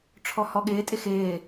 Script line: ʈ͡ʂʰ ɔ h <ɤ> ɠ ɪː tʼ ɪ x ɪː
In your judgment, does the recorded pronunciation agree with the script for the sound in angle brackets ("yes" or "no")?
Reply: no